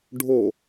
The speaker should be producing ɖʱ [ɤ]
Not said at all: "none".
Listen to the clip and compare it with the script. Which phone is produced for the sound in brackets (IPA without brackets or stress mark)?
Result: o